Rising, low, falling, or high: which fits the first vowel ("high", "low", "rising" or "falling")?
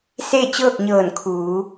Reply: falling